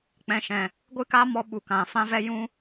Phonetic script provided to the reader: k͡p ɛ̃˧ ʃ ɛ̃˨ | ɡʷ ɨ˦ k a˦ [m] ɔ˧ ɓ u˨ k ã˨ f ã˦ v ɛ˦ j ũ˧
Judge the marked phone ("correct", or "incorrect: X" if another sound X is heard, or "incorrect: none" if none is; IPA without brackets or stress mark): correct